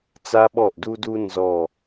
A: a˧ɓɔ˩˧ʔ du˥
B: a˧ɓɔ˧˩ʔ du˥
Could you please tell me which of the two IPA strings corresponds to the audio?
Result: B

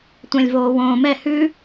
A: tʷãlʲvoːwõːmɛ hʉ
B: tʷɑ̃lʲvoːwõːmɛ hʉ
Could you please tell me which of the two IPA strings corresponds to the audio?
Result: A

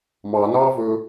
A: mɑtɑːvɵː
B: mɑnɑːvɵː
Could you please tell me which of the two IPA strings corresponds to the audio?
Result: B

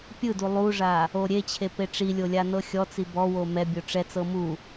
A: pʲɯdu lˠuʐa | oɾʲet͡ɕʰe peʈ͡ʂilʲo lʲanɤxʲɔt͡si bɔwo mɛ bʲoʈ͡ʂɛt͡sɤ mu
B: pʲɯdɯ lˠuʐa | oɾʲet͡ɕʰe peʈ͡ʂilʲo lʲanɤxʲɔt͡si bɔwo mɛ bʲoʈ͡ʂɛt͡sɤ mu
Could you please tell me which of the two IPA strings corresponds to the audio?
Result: A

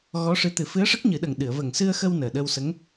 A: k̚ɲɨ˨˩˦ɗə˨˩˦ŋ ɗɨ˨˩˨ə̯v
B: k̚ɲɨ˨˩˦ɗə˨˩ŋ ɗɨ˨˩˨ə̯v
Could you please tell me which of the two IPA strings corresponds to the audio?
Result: B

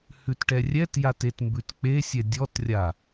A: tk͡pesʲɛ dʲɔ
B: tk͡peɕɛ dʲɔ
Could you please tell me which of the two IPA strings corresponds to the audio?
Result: A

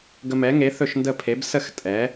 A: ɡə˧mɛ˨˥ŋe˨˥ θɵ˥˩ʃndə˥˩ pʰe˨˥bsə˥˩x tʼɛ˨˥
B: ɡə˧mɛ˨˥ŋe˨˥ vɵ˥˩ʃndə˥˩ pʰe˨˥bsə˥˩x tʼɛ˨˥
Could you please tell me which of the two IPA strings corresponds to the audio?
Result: A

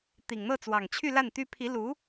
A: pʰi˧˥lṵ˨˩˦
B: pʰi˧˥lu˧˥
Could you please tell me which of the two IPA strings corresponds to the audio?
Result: B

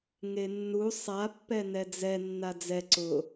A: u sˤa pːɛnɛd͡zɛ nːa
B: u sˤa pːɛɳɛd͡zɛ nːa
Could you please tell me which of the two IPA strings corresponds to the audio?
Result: A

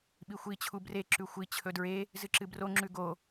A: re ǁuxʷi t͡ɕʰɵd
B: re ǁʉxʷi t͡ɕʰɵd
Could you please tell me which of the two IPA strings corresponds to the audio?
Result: B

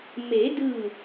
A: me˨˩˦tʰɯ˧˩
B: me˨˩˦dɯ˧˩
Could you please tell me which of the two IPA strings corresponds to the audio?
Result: B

